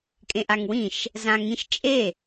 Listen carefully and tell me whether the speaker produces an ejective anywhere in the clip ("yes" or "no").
yes